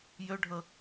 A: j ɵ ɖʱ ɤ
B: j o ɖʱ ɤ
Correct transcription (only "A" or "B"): A